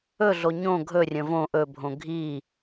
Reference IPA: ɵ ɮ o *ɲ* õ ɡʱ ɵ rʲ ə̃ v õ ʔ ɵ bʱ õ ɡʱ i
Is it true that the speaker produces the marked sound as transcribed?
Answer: yes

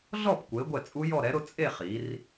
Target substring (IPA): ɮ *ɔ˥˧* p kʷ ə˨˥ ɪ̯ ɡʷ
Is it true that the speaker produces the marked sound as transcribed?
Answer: yes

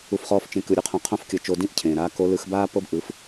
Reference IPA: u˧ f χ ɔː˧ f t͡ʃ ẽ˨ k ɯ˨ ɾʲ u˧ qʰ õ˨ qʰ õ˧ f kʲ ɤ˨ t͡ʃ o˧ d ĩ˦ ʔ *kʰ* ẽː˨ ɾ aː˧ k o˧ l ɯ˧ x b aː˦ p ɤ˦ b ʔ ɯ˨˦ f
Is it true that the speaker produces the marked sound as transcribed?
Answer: no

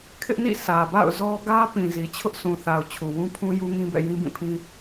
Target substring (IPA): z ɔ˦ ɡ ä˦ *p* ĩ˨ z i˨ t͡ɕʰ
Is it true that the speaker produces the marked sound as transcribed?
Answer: yes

